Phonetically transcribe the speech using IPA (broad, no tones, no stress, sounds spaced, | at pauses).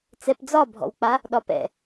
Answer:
t͡s ɛ p d͡z ɒ bʱ ɔ̰ w k͡p a | ɗ ɒ p ɛ̰